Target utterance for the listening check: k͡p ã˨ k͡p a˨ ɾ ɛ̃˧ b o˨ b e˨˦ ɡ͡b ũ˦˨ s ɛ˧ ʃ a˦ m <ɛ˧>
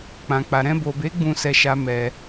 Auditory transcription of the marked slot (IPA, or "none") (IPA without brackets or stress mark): ɛ˧